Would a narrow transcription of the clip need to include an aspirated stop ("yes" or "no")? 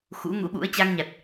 no